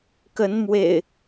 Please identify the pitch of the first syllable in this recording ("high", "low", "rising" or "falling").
rising